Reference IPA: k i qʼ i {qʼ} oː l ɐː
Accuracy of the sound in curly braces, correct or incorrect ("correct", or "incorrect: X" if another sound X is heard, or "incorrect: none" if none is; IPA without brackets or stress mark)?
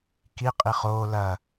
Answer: incorrect: χ